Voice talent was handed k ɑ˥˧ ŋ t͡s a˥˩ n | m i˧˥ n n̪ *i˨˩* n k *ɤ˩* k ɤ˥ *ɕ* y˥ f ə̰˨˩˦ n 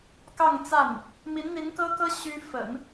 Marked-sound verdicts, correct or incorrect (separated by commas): incorrect, incorrect, correct